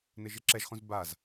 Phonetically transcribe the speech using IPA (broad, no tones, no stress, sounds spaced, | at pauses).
n ɪ ʒ ɪ ǁ ɛ ʒ χ ũ z b a z